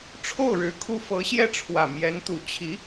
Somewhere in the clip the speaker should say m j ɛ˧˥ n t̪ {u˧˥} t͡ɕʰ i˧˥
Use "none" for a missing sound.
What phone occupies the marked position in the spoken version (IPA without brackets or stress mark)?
u˨˩